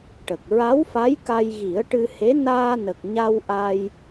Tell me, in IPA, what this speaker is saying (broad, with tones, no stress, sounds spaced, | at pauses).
ʈ ə˨˩ k̚ ɹ a˧˥ w f a˧˥ j k a˧ j ɣ i˨˩˦ ə̯ ʈ ɨ˧ h e˧˥ n aː˧ n ə˨˩ k̚ ɲ a˧ w ʔ a˧ j